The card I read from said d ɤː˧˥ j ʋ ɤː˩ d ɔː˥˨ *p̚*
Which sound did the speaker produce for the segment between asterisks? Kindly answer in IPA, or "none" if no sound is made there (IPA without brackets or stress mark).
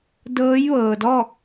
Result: k̚